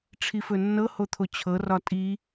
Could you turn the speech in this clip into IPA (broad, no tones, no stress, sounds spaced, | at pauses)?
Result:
ʈ͡ʂʰ i f ɵ nː ɤ h o t̪ʰ o t͡ɕʰ ɤ r ɒ tʼ i